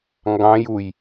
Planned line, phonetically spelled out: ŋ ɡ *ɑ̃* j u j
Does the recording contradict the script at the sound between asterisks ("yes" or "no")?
no